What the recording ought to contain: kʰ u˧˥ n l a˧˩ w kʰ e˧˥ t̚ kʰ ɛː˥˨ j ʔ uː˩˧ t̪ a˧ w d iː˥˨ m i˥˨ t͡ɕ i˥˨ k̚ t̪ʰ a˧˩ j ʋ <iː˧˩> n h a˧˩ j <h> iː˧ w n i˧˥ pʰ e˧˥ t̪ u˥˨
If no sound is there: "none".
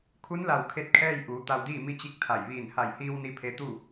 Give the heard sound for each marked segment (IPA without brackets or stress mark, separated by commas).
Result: iː˧˩, h